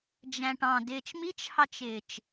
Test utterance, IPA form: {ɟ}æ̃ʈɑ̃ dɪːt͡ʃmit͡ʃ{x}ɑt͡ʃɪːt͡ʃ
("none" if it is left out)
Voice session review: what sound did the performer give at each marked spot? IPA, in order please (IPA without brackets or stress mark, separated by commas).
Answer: d͡ʒ, h